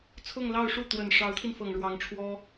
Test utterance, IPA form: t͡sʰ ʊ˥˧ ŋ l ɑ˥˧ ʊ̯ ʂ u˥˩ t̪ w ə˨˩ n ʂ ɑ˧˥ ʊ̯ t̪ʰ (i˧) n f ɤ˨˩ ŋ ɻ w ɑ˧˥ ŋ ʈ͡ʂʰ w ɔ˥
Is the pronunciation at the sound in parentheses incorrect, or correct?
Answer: correct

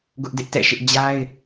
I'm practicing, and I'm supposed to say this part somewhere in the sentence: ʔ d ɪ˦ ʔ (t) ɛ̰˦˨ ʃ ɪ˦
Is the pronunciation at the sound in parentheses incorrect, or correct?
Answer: correct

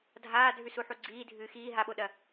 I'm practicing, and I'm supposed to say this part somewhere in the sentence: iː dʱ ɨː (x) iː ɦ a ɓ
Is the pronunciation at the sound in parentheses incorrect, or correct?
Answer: correct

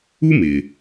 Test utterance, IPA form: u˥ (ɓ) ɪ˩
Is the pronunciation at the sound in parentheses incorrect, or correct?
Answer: incorrect: m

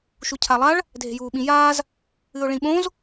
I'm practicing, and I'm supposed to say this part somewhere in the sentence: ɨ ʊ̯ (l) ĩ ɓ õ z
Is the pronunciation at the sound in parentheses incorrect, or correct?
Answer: incorrect: ɭ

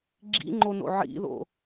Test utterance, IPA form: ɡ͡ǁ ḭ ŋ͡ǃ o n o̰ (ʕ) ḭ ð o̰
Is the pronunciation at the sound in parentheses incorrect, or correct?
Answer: correct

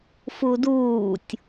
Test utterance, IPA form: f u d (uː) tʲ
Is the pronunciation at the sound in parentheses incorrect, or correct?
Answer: correct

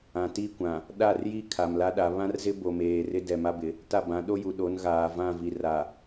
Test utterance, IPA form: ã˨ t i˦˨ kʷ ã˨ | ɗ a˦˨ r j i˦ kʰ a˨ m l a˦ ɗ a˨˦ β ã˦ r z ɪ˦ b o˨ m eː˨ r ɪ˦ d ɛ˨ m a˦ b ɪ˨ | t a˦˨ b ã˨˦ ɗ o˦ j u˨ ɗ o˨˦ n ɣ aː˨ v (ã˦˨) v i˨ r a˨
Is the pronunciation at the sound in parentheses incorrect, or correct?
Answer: correct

